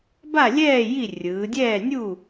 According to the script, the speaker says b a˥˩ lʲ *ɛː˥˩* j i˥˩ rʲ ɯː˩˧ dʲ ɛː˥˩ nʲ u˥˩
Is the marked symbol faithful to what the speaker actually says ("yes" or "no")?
yes